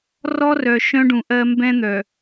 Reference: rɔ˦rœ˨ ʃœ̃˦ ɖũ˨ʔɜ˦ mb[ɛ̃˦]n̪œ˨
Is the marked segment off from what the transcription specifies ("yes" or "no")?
no